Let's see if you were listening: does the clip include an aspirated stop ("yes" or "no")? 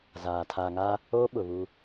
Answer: yes